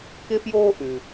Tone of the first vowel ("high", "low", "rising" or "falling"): high